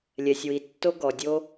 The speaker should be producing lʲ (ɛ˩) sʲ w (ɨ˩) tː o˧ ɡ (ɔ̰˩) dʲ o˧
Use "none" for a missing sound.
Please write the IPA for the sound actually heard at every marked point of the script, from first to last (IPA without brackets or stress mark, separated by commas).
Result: ɛ˩, i˩, ɔ˩